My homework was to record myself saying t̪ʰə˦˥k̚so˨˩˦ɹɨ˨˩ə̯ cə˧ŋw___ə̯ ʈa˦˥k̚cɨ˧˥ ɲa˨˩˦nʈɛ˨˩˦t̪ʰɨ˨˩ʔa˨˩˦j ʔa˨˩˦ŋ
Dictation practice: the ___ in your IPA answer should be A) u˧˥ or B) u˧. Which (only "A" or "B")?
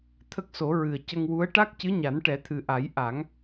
A